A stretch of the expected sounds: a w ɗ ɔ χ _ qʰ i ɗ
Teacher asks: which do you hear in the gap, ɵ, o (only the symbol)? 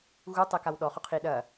o